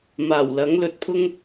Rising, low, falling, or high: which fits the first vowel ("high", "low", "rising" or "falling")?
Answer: low